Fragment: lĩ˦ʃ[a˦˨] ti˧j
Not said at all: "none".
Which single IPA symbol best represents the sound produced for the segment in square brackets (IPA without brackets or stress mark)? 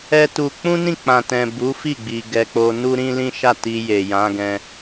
a˦˨